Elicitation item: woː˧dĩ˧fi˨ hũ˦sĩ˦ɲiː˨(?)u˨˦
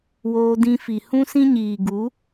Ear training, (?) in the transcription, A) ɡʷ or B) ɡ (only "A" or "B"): B